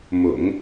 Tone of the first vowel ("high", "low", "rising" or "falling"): low